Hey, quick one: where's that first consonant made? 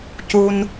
palate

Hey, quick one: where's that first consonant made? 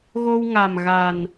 velum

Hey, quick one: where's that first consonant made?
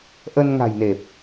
throat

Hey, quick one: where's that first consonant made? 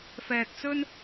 lips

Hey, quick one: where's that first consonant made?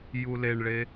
palate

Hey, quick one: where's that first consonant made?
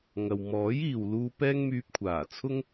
velum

